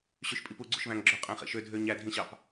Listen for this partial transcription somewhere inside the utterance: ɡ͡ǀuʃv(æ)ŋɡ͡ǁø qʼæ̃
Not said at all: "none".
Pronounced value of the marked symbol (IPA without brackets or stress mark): æ̃